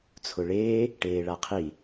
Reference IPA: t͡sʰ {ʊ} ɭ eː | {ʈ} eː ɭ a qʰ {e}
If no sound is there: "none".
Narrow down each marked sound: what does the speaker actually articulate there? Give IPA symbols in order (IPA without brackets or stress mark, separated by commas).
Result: ʊ, ʈ, i